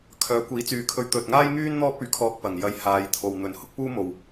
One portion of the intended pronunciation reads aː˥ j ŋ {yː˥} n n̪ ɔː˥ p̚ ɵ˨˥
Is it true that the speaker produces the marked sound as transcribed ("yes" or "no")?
yes